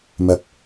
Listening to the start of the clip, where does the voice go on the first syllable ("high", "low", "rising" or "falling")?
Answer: rising